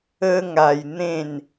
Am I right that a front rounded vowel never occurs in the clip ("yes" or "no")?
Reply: yes